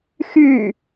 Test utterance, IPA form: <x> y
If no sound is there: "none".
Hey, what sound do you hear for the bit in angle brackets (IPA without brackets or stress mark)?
x